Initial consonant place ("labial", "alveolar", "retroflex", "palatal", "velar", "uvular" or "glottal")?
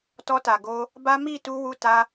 alveolar